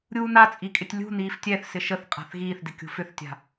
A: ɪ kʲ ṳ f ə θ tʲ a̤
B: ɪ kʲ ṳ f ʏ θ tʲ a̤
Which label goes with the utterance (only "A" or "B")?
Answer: B